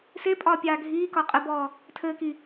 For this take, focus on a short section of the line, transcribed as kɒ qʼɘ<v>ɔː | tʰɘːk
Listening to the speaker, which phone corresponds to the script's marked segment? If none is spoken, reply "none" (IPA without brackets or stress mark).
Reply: b